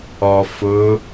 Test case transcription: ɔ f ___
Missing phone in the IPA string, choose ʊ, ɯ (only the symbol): ʊ